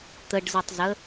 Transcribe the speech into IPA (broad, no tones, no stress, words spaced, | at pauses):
t̪əɖzitˤzə